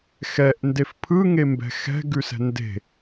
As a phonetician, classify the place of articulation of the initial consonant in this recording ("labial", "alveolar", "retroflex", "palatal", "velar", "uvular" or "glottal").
velar